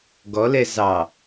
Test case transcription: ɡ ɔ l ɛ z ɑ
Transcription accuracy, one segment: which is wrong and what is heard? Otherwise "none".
none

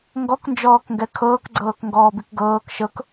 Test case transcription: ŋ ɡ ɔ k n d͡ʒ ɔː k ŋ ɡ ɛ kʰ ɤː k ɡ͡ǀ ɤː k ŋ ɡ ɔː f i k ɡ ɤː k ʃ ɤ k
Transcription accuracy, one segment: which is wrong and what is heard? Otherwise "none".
f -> b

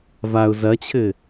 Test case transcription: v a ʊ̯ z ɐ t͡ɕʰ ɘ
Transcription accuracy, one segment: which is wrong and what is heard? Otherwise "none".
none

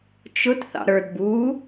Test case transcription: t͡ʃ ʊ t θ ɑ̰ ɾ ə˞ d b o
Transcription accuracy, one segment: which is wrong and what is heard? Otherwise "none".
o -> u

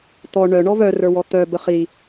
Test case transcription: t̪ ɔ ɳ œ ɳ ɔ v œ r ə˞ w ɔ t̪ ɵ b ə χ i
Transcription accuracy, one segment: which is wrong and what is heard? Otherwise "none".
ɵ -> œ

